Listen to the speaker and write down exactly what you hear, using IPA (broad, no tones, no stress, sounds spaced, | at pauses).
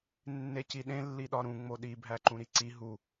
nː e c i ɗ ẽ lː i ɗ ɒ ɾ ũ ŋ͡m o ɗ i bʱ æ ǃ ũ ɾ i ǀ i ɦ u